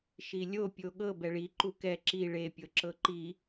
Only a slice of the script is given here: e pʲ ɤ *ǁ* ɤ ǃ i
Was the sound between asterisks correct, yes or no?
yes